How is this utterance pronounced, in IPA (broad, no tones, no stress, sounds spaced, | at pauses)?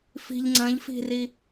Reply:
f i̤ ʎ ŋ͡ǀ ɐ̃ ʎ f i̤ r i